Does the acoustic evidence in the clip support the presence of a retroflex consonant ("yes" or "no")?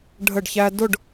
yes